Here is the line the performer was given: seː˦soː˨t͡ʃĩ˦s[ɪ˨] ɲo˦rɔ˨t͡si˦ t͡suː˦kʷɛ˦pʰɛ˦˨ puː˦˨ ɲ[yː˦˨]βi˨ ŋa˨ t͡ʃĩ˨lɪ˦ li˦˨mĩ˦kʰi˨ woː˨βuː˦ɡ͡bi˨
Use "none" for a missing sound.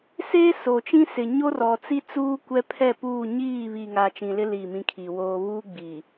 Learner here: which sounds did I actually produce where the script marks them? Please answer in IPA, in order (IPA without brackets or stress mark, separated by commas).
ɪ˨, iː˦˨